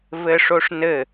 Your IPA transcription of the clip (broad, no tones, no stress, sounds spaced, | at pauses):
v ɘ ʂ o ʂ n ɘ